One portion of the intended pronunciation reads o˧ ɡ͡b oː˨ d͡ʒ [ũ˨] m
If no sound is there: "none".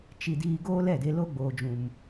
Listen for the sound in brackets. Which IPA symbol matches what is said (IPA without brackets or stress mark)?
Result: ũ˨